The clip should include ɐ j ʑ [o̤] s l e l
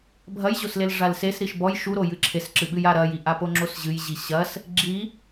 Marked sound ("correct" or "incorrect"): incorrect